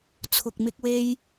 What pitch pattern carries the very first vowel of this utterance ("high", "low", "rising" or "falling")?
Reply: low